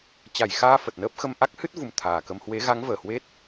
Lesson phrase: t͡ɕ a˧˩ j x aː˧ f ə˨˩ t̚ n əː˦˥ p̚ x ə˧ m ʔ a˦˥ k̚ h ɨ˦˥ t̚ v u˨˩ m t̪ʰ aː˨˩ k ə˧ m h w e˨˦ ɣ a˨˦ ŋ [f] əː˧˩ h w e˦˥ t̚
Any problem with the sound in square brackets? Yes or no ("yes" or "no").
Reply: yes